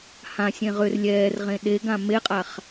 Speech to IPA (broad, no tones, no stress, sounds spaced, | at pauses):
h ã sʲ ẽ ʁ ʏ r lʲ ɛː r ʁ ẽ ɗ e ɡ ã m e qʼ a χ